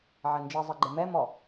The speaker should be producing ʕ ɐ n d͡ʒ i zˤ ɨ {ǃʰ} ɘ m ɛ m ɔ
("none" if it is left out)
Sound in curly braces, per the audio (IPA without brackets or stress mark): ɡ͡ǃ